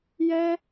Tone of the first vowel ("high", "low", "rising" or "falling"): high